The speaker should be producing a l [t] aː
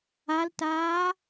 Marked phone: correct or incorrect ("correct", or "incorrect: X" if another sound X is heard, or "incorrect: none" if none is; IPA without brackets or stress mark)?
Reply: correct